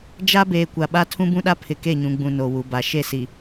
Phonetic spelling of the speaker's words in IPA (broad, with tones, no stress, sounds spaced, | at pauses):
d͡ʒ a˦ b eː˨ kʷ a˨ ɓ a˦ tʰ ũ˦ b ũ˦ ɗ a˦ pʰ ɪ˨ k e˦˨ ɲ ũ˨ ɡ͡b ũ˨ n o˨ w u˨ b a˨ ʃ e˦˨ s i˨